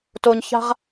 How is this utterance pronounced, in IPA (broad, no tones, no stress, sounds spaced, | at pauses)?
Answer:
t o ɲ ç a̤ ʁ